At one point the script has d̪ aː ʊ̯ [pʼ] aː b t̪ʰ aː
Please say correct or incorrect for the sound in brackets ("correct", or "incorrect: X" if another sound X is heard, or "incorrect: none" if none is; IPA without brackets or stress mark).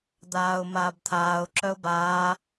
incorrect: m